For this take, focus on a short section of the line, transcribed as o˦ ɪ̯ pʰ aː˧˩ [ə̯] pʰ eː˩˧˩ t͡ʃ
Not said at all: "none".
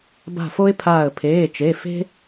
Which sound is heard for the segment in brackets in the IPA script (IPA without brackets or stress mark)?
ə̯